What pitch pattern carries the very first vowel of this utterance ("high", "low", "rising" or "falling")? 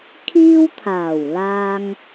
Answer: high